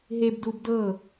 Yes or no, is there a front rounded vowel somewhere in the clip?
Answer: no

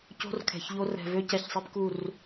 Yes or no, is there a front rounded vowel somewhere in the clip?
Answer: yes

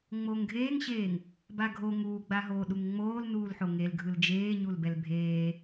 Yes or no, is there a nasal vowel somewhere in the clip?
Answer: no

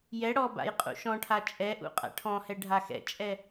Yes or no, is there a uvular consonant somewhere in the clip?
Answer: yes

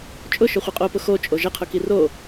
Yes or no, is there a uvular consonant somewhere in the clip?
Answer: yes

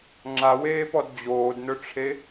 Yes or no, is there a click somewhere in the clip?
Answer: yes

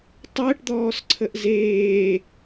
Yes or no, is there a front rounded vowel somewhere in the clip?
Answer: no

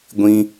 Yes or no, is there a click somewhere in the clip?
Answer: no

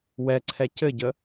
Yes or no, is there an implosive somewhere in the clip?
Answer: no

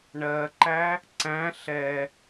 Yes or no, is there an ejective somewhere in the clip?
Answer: no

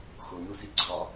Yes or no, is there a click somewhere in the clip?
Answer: yes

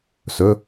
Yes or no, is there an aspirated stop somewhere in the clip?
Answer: no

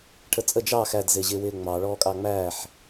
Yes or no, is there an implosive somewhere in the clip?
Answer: no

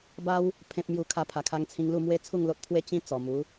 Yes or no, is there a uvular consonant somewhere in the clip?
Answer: no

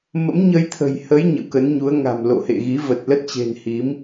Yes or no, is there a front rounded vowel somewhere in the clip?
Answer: no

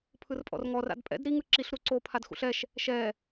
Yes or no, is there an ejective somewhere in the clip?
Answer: yes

